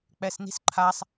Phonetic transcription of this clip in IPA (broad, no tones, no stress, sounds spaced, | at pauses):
k͡p ɛ s n i̤ s ǃʰ a sˤ